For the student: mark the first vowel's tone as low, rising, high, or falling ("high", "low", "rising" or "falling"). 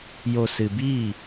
low